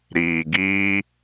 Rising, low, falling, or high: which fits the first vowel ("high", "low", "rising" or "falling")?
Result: low